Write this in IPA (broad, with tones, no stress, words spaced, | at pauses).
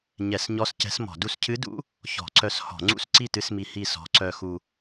ɲɛ˧˩˧sɲɔ˧˥scɛ̤˧˥smɔ̤˧˩˧ du˧scʰɨ˧˥dṵ˧˥ | çɔ̤˧˩˧ǀœ˧s hɔ̤˧˩˧ŋ͡ǀṵ˥˨s ǀi˥˨tɨ˧˥smi˧ hi˥˨sɔ̤˧˥ ǀœ˧xu˧